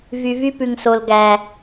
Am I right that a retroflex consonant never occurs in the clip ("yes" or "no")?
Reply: yes